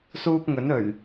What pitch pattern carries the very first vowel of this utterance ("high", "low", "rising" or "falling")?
high